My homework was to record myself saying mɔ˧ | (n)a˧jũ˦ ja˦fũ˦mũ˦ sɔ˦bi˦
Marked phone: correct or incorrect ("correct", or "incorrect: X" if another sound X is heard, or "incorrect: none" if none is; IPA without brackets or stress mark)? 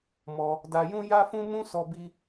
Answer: incorrect: d